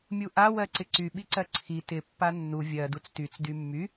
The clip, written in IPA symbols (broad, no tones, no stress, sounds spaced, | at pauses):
mʲ u ʔ a w ɜ ǀ ɪ ǀ y ɓ i ǀ ɜ ǀʰ i t ɪ pː a nː u vʲ ɜ d u t͡s t y t͡s d y mː y